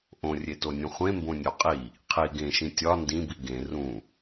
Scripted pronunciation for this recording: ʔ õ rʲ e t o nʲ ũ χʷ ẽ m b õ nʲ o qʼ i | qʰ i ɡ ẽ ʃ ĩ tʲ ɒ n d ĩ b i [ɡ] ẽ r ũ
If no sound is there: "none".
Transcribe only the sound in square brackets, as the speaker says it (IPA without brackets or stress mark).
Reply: ɡ